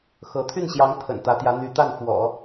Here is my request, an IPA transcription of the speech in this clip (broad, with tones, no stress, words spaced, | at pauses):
xɤ˧˥ t̪ʰy˥˩nɕjɑ˧˥ŋ t̪ʰə̰˨˩nt̪ä˧˥t̪jä˧˥ n̪y˧˥t̪a˥˩n fwɔ̰˨˩˦